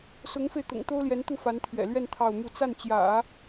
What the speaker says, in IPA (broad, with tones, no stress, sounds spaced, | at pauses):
s ʊ˧˥ ŋ f e˧ ɪ̯ t̪ ʊ̰˨˩ ŋ t̪ o˥ ʊ̯ l j ɛ˧˥ n t̪ u˥˩ f a˧˥ n t̪ʰ ɥ ɛ̰˨˩ l ɥ ɛ˥˧ n t̪ʰ ɑ˥˧ ʊ̯ m u˥˧ t͡s a˥˩ n t͡ɕ j ä̰˨˩˦